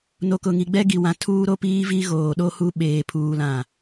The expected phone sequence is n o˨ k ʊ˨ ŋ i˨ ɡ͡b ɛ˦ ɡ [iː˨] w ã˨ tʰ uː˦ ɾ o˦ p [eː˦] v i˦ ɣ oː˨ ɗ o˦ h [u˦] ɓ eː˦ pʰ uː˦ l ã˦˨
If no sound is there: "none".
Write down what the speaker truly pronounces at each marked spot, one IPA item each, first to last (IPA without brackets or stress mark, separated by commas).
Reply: i˨, iː˦, u˦